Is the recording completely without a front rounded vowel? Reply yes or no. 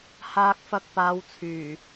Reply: no